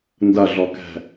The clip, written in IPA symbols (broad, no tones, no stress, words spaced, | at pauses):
ndɐɮɔkɛ̤